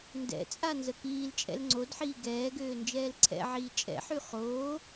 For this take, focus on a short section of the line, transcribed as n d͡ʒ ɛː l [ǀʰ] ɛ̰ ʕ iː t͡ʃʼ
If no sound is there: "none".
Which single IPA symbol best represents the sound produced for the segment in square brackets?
ǀʰ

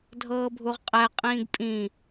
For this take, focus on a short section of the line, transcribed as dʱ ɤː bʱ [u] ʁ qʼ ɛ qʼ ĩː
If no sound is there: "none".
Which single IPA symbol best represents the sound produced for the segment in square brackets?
u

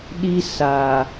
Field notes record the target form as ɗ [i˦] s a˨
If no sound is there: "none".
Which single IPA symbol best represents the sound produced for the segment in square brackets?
i˦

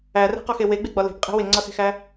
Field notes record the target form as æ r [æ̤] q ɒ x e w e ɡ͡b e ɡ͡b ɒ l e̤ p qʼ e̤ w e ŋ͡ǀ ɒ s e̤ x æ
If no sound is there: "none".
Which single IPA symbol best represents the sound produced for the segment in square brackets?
æ̤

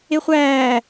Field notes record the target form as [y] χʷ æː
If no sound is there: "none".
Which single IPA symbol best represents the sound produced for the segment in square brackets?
e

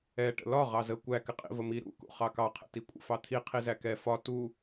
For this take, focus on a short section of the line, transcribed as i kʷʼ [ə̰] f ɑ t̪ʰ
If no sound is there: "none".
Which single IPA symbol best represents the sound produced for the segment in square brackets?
ə̰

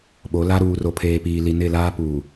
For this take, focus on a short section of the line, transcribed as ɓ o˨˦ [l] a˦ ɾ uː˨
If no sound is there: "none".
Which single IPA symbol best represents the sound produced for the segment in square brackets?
l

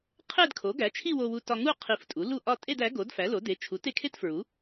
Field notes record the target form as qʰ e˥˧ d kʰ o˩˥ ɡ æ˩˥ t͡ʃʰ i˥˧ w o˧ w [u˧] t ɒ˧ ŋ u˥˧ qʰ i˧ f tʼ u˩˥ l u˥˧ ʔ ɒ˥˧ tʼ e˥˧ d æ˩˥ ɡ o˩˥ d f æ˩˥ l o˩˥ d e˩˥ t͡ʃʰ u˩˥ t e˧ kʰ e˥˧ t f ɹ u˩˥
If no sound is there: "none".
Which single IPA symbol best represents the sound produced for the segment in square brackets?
u˧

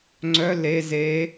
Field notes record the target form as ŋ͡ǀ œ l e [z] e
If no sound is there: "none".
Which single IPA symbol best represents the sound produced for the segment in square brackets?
z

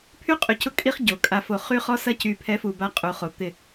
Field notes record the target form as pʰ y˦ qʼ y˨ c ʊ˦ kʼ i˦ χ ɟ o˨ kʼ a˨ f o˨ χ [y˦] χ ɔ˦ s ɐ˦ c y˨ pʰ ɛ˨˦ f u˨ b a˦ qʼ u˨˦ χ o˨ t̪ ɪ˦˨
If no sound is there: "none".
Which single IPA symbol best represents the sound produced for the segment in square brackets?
y˦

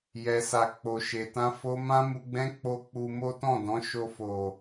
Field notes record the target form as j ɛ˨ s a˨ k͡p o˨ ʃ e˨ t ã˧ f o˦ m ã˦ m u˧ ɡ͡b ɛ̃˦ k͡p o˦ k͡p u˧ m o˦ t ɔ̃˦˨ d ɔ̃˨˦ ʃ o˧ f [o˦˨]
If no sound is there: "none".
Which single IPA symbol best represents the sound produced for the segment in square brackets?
o˨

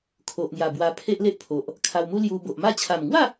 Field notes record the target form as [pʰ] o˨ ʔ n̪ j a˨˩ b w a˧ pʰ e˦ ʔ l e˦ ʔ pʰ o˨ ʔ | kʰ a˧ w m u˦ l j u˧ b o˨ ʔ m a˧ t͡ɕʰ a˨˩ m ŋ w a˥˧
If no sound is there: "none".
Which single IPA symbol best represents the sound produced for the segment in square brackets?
kʰ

